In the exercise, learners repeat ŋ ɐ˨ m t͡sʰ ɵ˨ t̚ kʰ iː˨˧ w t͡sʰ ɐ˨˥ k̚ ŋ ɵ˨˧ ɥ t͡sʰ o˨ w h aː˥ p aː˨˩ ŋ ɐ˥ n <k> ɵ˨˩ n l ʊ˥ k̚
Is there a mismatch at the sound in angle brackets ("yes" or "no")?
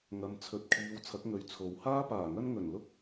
yes